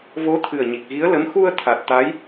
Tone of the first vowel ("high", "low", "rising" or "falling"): rising